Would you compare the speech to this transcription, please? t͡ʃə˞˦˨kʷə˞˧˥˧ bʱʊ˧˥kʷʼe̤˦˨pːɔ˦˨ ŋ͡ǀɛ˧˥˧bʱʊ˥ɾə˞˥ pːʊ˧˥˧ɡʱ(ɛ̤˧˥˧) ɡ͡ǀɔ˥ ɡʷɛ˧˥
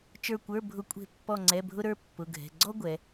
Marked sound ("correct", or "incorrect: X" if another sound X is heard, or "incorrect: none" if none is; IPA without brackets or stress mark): correct